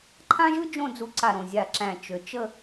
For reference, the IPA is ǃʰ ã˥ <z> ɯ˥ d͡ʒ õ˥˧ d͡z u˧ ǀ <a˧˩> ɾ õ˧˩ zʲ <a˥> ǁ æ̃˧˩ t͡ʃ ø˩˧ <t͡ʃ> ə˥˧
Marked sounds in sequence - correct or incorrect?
incorrect: ʒ, correct, incorrect: a˧˩, correct

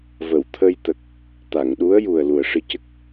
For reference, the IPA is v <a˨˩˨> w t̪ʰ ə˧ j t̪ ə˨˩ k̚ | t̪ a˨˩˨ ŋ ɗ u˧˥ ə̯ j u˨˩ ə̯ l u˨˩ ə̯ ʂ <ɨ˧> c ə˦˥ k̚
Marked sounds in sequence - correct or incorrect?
incorrect: ə˨˩˨, correct

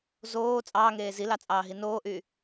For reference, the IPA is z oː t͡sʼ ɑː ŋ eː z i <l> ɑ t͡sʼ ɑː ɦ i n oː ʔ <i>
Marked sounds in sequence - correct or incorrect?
correct, incorrect: y

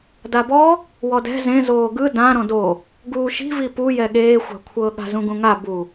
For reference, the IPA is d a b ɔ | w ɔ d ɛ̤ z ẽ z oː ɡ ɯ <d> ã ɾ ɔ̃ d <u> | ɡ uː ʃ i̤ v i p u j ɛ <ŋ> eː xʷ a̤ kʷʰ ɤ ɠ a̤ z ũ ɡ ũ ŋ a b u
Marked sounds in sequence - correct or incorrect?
correct, incorrect: o, incorrect: ɠ

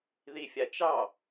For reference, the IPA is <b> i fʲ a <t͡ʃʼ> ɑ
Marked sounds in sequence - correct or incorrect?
incorrect: ð, incorrect: t͡ʃ

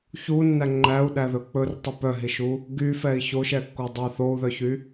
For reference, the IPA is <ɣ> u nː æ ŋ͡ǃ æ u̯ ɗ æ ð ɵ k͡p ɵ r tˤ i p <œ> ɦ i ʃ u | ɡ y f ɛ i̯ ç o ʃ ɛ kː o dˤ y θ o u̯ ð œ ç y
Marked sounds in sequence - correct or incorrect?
incorrect: ç, correct

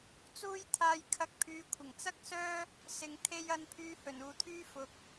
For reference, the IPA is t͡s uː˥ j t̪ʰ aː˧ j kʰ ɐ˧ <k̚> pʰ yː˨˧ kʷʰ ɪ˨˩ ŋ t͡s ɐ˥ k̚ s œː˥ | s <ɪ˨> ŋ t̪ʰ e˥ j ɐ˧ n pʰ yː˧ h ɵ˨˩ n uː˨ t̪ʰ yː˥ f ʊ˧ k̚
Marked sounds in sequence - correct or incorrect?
correct, correct

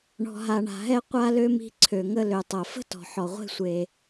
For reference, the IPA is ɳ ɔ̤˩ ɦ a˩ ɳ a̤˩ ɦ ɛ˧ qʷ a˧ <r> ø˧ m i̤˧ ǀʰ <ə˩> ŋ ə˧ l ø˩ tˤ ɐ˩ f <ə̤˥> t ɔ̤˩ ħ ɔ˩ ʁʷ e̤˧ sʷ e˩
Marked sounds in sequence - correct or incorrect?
incorrect: l, incorrect: ø˩, correct

